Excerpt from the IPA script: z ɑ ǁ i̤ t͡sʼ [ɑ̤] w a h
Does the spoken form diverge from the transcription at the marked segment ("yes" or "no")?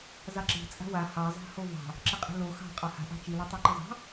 yes